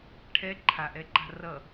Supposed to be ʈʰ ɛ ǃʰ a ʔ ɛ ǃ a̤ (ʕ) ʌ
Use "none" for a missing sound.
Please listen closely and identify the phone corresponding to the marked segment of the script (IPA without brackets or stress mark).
r